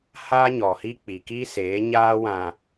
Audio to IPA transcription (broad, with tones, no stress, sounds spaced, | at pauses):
h aː˦ ɲ ɔ˨ h i˦ k͡p i˨ k i˦ s eː˨˦ ɲ aː˦ w ã˨